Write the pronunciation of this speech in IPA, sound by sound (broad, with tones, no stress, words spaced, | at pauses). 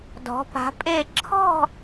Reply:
dɔ̤˧˥pa̤˧˥pʼe˥˧ ǁʰɔ̤˥˧